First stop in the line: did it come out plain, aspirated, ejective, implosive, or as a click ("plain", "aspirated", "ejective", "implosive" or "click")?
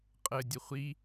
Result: ejective